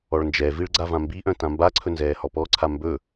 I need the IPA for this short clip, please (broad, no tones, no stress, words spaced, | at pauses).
ɔɭnd͡ʒɛviɭ ɡ͡ǀavãmbiʔœ̃ tãmbaǀʰɵ nzɛːhɔpɔǀʰa mbɵ